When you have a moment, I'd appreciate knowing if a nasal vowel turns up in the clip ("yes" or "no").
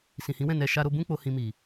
yes